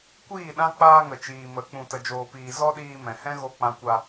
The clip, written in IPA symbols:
kʷiː˦˨ɗã˦ k͡paː˦ŋə˨t͡ʃiː˨ mə˨˦ k͡pũ˧tə˧d͡ʒoː˧piː˧ zɔ˦ɗiː˧mɛ̃˨ hɛ̃˦ ɣo˧k͡pã˧kʷa˧

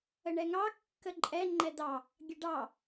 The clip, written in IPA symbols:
əɳɛŋɑ kːəǃʼɛ ŋ͡ǃɛdɑ | ɡʲəɖɑ

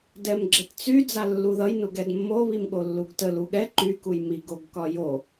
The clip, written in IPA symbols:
dɛmɡ͡ǁɘtt͡sy d͡zalːuðʌj nuɡɛdmːo βimɠolːuɡtəl uɠɛ ǃy kujmi ɡoɡkɒjo

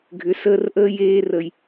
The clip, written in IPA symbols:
ɡʱʏ˨˦səː˧rʔəː˦ jeː˧rə˨j

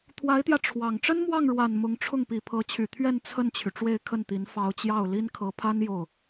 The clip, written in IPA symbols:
t̪ʰwa˧˥ɪ̯t̪jä˧ ʈ͡ʂʰwɑ˨˩ŋ ʈ͡ʂə˥nmwɑ˥˩ŋ ɻwa˨˩n mʊ˧˥ŋʈ͡ʂʰʊ˥˩ŋ pi˨˩pʰɤ˧˥t͡ɕʰy˨˩ t̪ʰɥɛ˥˧n t͡sʰə˥˩nt͡ɕʰy˩ ʈ͡ʂwe˥˧ɪ̯kʰə˥˩nt̪i˧˥n fɑ˧˥ʊ̯t͡ɕjɑ˥˩ʊ̯ li˥n kʰɤ˧˥pʰa˥n jo˥˩ʊ̯

